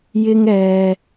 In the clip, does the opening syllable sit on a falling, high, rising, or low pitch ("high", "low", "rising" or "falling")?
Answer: high